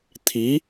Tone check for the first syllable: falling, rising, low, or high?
rising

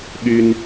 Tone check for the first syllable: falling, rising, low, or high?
high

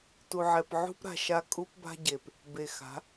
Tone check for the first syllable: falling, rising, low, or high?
low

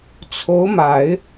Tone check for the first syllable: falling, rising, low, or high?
rising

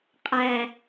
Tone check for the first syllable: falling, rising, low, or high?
low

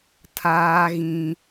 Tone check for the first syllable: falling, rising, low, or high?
high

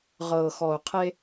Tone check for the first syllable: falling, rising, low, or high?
low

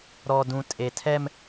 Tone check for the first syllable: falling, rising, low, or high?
low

